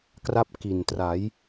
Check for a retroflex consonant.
absent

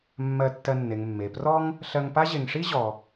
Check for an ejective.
absent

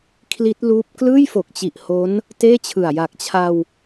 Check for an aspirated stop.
present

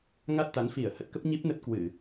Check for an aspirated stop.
absent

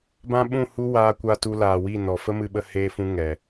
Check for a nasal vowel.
present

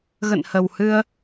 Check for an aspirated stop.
absent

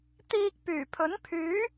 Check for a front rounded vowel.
present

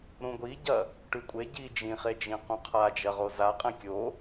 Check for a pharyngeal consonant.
absent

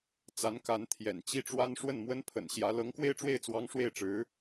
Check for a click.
absent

